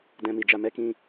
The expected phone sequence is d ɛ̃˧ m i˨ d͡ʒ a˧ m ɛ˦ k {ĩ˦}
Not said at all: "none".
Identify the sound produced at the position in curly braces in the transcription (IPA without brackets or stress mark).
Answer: ĩ˦